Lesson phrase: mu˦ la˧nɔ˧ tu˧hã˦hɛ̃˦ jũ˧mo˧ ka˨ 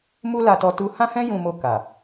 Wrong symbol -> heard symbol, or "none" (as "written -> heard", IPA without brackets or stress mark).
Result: n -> t